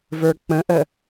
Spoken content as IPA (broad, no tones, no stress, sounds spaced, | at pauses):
v ə˞ k͡p ə̃ ʔ ə